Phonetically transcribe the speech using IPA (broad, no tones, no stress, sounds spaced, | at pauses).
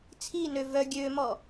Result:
t͡sʰ i n ø v œ ɡʲ ø m ɔ